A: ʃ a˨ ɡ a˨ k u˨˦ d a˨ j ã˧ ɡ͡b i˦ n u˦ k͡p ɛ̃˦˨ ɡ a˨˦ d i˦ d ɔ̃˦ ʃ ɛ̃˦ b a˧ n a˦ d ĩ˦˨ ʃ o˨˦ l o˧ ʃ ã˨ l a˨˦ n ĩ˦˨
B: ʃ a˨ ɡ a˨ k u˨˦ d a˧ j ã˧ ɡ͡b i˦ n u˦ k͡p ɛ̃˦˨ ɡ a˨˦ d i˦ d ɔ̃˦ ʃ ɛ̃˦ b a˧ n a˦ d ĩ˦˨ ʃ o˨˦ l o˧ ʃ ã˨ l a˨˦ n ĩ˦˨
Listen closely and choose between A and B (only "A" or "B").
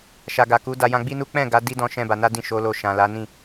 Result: B